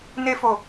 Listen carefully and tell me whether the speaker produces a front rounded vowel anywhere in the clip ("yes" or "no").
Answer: no